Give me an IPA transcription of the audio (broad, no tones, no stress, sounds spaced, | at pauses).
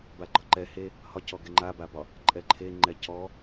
b a ɡ͡ǃ ɒ ǃ ɛ h e | h ɒ c ɔ ɡ ɛ ŋ͡ǃ a b a b ɒ | ǃʼ ɛ ǃʰ e ŋ͡ǃ ɛ c ɔ